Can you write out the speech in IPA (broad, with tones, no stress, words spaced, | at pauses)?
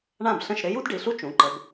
ɳã˥˩bɬə̃˥˩ʃ ɾɪ˥ ju˥dɖi˩˧˩ɬu˥ t͡ʃũ˩˧˩ǃə˨˦b